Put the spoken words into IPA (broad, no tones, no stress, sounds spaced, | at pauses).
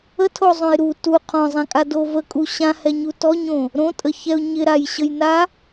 ə tʰ o zˤ õ j ɾ u t u qʰ ɔ̃ zˤ ã kʼ a d o v ə kʼ u ɕ ã h ɛ ɲ u t ɔ ɲ õ | ɾ õ tʼ ə ç ɛ ʊ̯ ɲ ɪ ɾ a j ɕ ə j n a